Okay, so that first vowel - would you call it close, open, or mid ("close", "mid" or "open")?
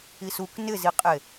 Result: close